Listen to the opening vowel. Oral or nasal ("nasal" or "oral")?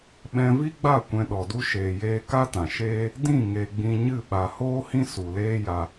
nasal